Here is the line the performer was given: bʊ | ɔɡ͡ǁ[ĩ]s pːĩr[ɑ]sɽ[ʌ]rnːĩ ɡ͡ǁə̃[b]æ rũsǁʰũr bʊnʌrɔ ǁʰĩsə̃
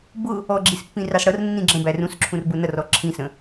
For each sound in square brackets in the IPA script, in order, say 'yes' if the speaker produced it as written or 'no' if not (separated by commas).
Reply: no, yes, yes, yes